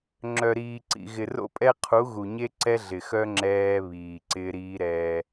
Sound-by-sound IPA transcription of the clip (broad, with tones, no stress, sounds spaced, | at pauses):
ŋ͡ǁ œ˨ ɾ iː˨ ǀ ḭ˨ ɣ ɪ˨ r o̰˦ pʼ ɛ˦ qʰ u˨˦ ɣ u˨ ɲ e˦ ǀ ɛ˦ ɮ ɪ˨ x œ˦ ŋ͡ǁ ɛː˦ β iː˨ ǀ ɪː˦ ɾ iː˦ ɾ ɛː˦